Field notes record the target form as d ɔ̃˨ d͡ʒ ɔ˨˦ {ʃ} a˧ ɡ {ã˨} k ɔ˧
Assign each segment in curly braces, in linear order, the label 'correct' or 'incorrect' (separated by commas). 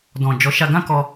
correct, incorrect